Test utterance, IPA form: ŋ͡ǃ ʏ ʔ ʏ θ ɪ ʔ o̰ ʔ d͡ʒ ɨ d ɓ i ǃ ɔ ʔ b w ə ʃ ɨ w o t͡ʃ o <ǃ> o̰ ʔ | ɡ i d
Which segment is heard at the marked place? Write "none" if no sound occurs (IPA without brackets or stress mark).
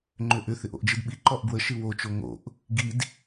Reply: ŋ